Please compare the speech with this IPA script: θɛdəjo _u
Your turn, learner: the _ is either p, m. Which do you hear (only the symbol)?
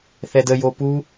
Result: p